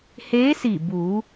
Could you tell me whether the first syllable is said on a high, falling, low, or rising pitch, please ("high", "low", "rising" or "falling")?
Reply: rising